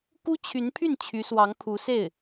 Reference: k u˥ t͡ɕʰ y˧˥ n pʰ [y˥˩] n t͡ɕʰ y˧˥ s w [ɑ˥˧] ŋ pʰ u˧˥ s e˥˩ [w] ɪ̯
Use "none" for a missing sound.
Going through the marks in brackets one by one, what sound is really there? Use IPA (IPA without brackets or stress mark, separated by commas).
y˥˩, ɑ˧˥, none